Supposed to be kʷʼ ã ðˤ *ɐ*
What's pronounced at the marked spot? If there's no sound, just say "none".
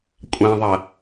ɐ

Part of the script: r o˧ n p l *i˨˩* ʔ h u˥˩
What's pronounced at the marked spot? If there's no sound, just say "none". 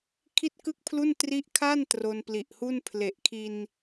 i˨˩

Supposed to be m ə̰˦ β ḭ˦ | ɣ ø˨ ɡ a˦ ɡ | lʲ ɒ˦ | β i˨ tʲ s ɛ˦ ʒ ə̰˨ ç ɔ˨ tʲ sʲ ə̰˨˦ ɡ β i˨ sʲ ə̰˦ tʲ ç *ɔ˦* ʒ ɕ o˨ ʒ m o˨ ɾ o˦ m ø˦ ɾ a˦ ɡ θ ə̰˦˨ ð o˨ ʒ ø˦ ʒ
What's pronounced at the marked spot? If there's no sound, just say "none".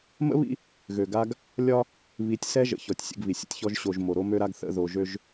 ɔ˦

